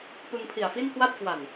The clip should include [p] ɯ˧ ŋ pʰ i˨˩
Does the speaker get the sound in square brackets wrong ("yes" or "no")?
no